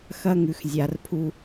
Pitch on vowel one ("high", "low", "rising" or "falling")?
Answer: high